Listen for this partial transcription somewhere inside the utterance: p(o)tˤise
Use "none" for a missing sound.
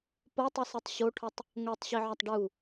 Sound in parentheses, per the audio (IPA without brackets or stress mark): o